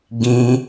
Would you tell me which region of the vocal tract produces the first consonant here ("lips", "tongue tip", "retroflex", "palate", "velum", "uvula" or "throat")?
velum